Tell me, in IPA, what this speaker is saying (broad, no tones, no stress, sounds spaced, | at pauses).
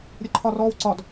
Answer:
ɾʲ ə ǃʰ ɒ r ɔː w ǀ ɒ d